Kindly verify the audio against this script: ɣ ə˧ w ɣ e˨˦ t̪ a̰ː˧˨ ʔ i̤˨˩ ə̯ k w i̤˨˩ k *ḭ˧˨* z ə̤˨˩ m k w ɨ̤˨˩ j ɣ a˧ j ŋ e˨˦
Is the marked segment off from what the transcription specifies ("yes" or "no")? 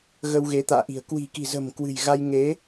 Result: yes